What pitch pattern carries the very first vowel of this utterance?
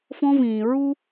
high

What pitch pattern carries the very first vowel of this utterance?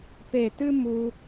low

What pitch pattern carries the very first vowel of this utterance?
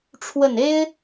falling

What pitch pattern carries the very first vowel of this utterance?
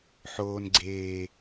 low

